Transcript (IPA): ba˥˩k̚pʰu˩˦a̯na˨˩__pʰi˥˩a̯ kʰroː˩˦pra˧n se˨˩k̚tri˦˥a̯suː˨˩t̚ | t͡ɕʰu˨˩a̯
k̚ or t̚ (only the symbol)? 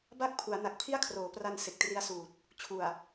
k̚